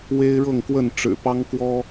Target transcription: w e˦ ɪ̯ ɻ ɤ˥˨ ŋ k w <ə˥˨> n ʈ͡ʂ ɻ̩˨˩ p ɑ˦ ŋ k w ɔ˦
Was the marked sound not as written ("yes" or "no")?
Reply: no